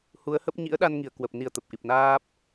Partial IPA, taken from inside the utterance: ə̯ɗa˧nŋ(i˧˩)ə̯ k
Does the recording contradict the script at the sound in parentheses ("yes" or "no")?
no